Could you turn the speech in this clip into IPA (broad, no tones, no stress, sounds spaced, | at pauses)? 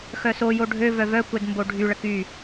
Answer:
x œ s o j o ɖʱ ø v œ v œ kʷ ɛ d m b o ɖʱ y ɭ ə k y